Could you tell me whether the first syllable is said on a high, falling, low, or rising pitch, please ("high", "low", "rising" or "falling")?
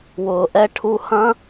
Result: low